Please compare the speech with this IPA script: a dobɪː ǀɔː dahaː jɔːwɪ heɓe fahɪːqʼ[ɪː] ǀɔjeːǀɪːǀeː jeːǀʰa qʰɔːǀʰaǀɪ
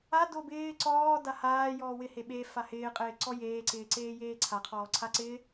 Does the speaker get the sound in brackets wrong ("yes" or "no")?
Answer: no